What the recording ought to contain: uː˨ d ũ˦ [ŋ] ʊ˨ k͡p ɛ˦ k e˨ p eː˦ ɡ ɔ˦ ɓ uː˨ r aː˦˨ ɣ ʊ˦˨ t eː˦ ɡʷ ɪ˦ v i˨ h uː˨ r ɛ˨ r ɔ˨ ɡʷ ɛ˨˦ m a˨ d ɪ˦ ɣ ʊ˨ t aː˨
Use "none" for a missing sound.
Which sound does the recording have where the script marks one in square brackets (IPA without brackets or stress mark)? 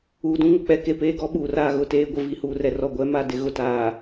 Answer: ŋ